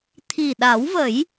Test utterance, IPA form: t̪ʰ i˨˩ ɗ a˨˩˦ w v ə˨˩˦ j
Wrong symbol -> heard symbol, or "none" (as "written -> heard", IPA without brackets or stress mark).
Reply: none